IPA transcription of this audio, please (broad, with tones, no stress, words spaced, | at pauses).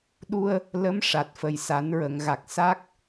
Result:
ɗu˧ə̯ | lə˧˥m ʂa˨˩t̚fə˨˩jsa˨˩˦n ɹə˨˩˨ŋɣa˨˩k̚ sa˦˥k̚